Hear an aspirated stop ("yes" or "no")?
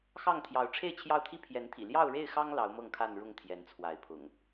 yes